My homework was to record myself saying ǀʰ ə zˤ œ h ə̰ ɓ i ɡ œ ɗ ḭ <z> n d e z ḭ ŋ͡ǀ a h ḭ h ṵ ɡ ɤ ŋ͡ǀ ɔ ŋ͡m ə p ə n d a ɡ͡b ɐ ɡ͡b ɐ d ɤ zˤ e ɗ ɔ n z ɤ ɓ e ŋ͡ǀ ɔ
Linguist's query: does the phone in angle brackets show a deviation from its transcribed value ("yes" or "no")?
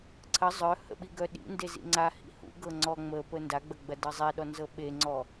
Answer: yes